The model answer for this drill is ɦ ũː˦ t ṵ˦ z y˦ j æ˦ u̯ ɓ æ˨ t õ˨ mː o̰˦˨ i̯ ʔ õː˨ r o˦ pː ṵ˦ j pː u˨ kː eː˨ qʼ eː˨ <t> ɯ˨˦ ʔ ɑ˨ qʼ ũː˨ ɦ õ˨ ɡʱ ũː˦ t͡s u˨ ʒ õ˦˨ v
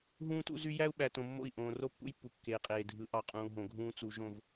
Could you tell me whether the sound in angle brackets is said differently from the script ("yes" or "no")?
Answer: yes